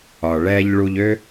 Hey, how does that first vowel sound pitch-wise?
low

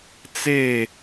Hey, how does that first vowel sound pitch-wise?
falling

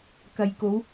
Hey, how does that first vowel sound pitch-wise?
low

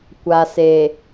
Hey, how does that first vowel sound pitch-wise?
low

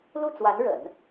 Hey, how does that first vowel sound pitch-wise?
falling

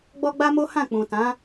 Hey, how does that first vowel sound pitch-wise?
high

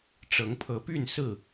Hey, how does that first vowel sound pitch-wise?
rising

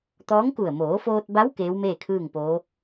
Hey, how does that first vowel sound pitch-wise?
rising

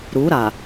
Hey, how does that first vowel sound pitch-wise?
rising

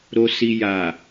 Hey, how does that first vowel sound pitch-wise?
low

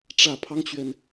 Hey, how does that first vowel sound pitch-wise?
low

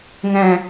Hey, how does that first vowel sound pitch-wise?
low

